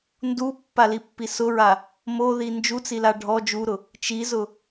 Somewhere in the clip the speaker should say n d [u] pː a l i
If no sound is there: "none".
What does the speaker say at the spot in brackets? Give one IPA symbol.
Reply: u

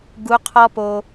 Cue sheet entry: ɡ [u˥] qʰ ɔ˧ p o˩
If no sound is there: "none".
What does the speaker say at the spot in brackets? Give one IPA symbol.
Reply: u˩˧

